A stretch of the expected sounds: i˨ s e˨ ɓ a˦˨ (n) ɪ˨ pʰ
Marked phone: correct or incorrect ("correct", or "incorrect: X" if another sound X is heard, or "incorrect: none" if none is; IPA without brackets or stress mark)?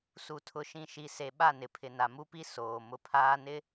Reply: correct